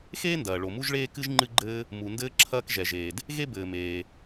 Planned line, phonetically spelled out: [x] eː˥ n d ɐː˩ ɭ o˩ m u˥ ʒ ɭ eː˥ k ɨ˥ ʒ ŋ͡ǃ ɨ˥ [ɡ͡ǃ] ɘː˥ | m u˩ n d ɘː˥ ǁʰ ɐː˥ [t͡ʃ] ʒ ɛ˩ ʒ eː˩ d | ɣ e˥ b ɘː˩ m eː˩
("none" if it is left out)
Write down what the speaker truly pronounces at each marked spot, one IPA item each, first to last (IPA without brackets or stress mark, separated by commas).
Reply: x, ɡ͡ǃ, k